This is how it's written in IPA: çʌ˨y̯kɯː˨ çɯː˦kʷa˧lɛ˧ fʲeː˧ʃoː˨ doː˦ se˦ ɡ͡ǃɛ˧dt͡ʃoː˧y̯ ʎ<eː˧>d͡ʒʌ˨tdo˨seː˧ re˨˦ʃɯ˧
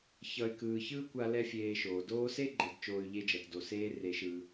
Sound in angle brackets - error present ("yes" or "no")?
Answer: yes